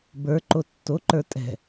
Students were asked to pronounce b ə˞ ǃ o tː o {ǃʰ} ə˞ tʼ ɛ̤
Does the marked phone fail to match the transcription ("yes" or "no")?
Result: yes